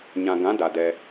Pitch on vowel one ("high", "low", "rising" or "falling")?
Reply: low